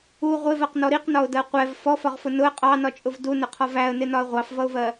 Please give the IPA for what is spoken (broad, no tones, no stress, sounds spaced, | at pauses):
u ʁʷ ɪ v ɜ q n ɔ ɾ i q n ɒ ʊ̯ d ɜ qʷ ɛ v f ɔ f ɒ ʁ f ʊ n ʊ ə̯ qʼ ɑ n ɒ t͡ʃʼ ʊ v d u n ə qʰ ɒ v æ ə̯ n ɪ n ɒ ə̯ ʁʷ ɑ f v ʌ ʊ̯ v ɜ